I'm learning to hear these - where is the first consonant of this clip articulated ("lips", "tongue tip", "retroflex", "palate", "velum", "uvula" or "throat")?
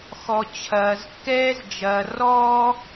velum